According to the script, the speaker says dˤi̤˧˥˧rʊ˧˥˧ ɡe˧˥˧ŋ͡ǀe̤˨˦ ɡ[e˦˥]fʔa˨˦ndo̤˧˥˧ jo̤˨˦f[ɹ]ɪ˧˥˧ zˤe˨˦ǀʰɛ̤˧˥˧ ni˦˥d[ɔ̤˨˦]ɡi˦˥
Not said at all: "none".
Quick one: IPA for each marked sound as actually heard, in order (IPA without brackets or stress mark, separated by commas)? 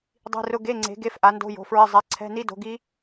e˧˥˧, ɹ, o̤˨˦